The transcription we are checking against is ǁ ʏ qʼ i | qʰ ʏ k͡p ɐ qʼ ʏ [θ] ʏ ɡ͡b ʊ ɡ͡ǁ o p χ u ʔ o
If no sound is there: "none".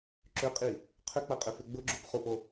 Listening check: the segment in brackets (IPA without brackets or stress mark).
f